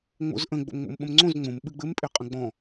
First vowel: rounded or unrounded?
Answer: rounded